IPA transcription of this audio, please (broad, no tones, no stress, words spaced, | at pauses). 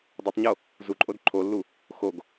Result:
dˤotˤɲo | zuǃʼod ǃʰolːu | xoɡ